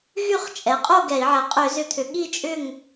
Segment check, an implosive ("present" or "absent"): present